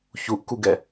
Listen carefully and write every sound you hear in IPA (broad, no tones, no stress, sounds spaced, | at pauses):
ç u ʔ k u ɡ ɛ